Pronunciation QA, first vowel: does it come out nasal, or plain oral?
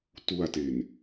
oral